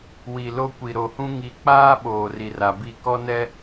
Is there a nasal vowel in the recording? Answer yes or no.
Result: yes